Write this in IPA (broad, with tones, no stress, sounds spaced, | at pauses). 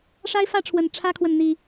ʂ a˦ ɪ̯ f ä˥˨ ʈ͡ʂʰ w ə˨˩ n ʈ͡ʂʰ ä˦ kʰ w ə˨ n n̪ i˨˩